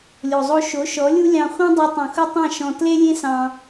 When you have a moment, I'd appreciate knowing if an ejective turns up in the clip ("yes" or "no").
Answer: no